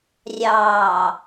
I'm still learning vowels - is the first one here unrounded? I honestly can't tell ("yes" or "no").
yes